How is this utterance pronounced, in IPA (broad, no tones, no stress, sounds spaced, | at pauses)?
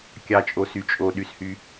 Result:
kʲ ɑ t͡ʃʼ o s y t͡ʃʼ o ɗ y s h y